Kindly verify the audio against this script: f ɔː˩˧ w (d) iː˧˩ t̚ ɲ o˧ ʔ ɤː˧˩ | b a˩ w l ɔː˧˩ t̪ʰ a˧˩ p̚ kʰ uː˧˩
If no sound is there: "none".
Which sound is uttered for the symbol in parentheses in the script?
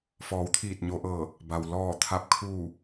t̪ʰ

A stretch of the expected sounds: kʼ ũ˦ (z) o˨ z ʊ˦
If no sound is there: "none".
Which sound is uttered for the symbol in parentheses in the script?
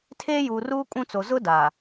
t͡s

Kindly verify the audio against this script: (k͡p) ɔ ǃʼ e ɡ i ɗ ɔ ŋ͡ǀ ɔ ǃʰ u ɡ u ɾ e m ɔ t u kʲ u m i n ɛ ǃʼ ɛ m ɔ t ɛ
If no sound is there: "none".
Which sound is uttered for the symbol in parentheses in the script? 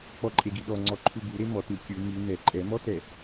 k͡p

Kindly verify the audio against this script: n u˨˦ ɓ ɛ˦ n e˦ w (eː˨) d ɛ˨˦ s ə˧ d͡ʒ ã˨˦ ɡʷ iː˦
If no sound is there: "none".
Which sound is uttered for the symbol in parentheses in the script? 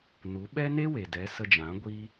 e˨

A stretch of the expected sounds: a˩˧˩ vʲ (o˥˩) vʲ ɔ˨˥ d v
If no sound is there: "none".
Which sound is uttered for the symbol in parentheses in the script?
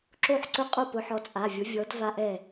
o˨˥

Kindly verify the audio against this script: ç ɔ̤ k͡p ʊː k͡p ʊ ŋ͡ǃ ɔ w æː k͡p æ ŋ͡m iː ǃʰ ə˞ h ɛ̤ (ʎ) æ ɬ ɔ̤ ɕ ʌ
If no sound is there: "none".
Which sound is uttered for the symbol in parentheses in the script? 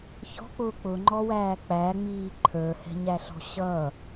ɲ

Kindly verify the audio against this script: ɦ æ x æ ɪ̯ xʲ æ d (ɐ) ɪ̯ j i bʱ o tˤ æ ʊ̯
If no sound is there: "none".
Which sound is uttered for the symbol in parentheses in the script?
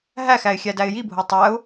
æ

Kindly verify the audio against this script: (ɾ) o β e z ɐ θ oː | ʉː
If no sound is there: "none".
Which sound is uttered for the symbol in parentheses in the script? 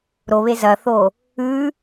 ɾ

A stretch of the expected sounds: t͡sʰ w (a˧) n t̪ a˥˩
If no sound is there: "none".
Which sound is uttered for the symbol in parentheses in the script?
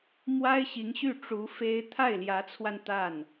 a˧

